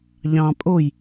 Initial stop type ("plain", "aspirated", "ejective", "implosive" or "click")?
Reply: ejective